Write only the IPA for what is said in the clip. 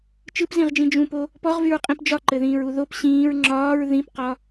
t͡ʃɯpzĩʁd͡ʒĩ d͡ʒũpo | pɔʁvyɹqʼĩp d͡ʒɒǃɘðĩːɹu ðop ɕĩːɹ ŋ͡ǁɒːɹ ðĩpqɒ

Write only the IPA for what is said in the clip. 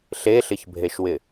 ɬeɬɪçbʱeʃwɪ

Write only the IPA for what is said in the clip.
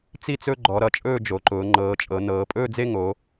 t͡si˥˧t͡sɵ˥˧ ɡ͡ǃɔ˩˧ɾʌ˩˧ t͡ʃʼɵː˥˧d͡ʒo˩˧ǃʊː˩˧ ŋ͡ǃɤː˩˧t͡ʃʼɤ˩˧ nɤː˩˧pʼɵː˥˧d͡ze˥˧ ŋo˩˧

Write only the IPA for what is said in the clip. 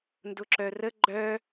ndʊǁœrə ɡ͡ǃœ

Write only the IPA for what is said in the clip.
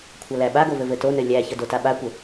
kʷʰɐlæɓaɡo vɘvɘtonɘ lʲæçə dotaɓakʷɘ

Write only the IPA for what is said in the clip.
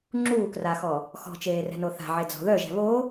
ŋ͡ǁuːkraxɔ | xɔ̤t͡ʃeːrɛ̤no θa̤ʕed͡zɔ̤ ðœʒɛ̤ βo

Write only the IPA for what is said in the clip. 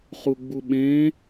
χuɡ͡buɓẽ

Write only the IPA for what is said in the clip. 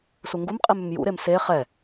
suŋɡumqʼim ʏmjṵɾem se χɛ

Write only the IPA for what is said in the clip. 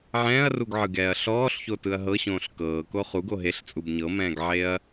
ʕɛ̃ːɐ̯ruɡʕɯɡɛːɐ̯ ɬɔːɬçotɯɐ̯ ɦɤɕõːɬ kɤːko χuɡo ɦeɬt͡sʼub ɲɤmɛ̃ːɡʕeɐ̯

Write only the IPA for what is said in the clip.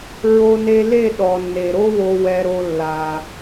ɹo˧ne˧le˦˨ ɗɔ˨nːe˨ɾo˦wo˧ wɛ˧ɾo˧ lːa˨

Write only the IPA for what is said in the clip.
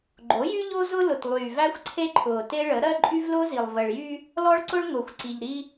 ɡ͡ǃo˨˦jy˦ ʎo˦zʊ˦ lʊ˨tlˠyː˨væ˦xʷ ǀʰe˦ǃʰʊː˨te˦ɭə˨˦ ɾɜ˦ǃʼy˦vlʊː˦zi˨lˠ və˨ɭjy˦ | lɔ˦ɭǀʊ˦ɭ ŋʊː˨xʷǀi˨ʎɾi˦

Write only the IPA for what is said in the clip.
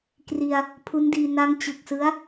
kri˧a̯ | pʰu˦˥ndiː˧ na˦˥ŋt͡ɕɯ˨˩k̚sɯ˦˥a̯

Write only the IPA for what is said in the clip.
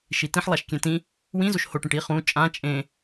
ʃitĩħ lˠaʃkʲɛ̃tĩ | wĩ zoʃhoʈẽʈ i χũ t͡ʃʼã t͡ʃʼẽ

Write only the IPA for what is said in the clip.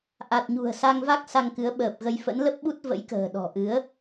ʔa˨˩t̚ɲṳ˨˩ə̯ sa˧ŋva˦˥k̚ sa˧ŋkɨ˨˦ə̯ɓəː˨˩p̚ɣə˧j fə̰˧˥nlə˦˥p̚ɓu˦˥t̚ və̰˧˥jkə̤ː˨˩ ɗɔ̤˨˩ʔɨ˨˦ə̯

